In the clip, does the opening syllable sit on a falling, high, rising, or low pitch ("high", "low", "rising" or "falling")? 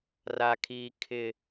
high